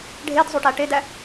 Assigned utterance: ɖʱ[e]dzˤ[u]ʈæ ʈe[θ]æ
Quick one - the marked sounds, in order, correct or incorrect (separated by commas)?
correct, correct, incorrect